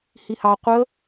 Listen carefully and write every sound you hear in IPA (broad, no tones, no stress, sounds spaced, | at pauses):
h i h ɑ qʷ ə